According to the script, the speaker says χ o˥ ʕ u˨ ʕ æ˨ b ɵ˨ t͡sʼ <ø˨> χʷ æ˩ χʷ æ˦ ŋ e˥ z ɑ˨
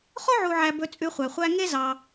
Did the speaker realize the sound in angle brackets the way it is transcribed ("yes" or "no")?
no